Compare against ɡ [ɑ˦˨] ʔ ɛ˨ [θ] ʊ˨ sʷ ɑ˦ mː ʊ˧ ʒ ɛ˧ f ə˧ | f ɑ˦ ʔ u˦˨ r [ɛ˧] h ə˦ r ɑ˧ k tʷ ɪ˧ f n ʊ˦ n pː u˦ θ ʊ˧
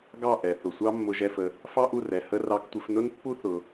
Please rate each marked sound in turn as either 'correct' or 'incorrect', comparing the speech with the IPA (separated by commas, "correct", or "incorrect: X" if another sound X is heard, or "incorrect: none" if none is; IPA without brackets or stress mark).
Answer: correct, correct, incorrect: ɛ˨